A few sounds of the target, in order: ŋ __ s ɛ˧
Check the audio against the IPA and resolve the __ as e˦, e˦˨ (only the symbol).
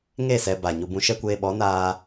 e˦˨